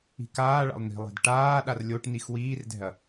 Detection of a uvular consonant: absent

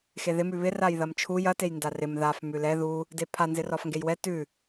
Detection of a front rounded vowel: absent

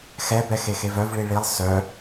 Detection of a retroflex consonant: present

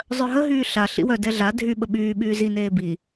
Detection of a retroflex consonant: absent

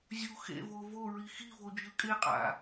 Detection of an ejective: present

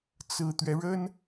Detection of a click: absent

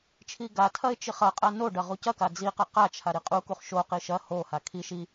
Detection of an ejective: present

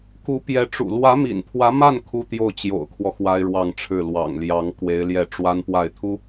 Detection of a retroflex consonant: present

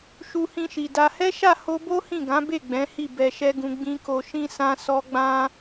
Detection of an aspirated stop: absent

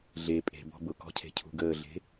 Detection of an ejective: present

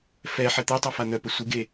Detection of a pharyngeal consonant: present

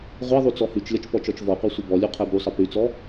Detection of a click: absent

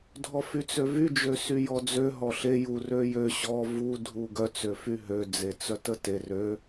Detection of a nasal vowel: absent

